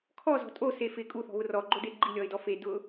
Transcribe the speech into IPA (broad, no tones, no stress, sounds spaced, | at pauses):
kʰ ɔ z ɔ̤ tʼ o s e f ɪ kʼ u θ ɔ̤ β ʊ r ɔ ɡ͡ǃ o d e ɡ͡ǃ i lʲ ɔ ɪ̯ d ɔ f e d ʊ